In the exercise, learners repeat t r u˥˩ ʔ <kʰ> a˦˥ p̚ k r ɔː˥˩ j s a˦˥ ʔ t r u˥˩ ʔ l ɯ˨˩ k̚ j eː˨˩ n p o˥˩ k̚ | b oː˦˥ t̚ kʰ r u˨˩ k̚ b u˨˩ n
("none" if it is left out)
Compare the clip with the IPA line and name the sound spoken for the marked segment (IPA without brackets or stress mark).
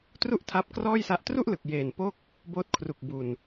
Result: tʰ